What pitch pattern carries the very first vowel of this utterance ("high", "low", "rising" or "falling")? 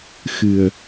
low